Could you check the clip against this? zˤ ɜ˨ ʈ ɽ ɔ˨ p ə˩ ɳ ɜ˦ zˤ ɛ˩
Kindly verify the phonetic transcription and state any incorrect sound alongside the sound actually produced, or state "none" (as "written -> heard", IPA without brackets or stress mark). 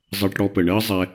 ɛ˩ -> ɛ˨